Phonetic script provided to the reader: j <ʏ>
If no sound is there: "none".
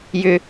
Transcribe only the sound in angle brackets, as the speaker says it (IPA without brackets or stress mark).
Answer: ʏ